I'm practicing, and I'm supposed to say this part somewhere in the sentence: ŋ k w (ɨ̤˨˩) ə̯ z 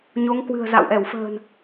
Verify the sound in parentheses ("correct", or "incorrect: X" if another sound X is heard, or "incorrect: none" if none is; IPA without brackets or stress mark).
correct